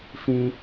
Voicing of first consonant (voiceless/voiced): voiceless